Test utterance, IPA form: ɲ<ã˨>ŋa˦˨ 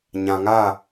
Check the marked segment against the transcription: correct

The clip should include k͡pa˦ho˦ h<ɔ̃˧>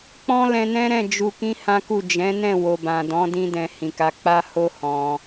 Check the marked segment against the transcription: correct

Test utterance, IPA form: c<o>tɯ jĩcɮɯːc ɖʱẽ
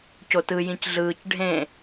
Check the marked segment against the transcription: correct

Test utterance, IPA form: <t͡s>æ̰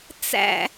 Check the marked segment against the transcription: correct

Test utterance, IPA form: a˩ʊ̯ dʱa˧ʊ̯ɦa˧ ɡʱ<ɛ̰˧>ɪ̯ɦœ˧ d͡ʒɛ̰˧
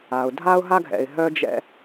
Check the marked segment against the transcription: incorrect: ɛ̰˩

